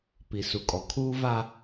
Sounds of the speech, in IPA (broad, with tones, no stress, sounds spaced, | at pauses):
p i˨ s u˨ kʼ ɔ˨ kʰ uː˦ v a˦